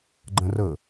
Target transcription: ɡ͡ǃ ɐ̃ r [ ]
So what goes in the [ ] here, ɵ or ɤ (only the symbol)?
ɤ